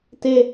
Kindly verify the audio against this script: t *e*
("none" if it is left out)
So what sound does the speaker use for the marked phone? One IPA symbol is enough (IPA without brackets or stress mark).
e